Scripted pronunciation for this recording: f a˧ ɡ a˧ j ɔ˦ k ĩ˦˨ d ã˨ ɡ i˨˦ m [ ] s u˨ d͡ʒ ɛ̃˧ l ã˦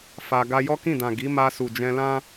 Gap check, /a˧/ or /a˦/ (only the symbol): a˧